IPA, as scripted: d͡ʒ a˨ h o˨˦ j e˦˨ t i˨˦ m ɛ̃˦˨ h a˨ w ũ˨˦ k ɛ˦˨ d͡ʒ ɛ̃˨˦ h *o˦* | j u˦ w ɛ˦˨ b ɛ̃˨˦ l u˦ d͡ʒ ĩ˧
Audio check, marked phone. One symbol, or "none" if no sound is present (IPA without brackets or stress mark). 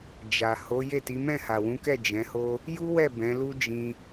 o˦